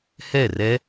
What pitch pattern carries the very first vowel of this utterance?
falling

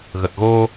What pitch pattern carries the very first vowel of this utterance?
low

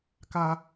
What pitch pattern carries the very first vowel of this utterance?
high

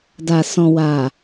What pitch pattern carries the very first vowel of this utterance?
low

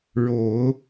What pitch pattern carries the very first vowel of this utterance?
rising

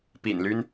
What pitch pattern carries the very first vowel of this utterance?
low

